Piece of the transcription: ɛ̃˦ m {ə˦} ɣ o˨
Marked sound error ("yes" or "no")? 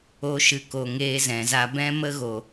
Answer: no